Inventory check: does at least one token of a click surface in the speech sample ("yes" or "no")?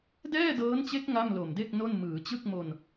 no